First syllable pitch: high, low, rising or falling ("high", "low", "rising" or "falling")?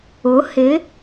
rising